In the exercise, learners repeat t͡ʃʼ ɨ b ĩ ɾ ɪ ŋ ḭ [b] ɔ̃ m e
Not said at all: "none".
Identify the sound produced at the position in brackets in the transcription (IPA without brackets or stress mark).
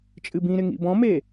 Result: b